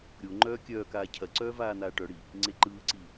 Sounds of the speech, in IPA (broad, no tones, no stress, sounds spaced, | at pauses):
ɾʲ o ŋ͡ǃ œː kʲ œː k aː cʰ ɐ ǀ œː v aː n̪ aː ʈ œ ɽ i | ŋ͡ǀ e ǃ ɯː ǀ i